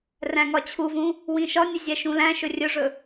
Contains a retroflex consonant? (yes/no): yes